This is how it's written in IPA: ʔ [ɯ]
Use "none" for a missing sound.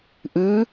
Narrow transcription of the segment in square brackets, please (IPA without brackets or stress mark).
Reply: ɯ